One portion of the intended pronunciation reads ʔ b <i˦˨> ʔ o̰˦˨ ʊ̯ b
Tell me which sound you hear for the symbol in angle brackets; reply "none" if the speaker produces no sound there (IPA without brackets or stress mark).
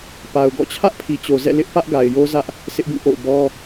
ĩ˦˨